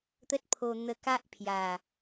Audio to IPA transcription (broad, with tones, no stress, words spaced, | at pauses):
t̪ə˦t̚pʰo˧n̪ə˧ ka˦ʔpʰja˨˩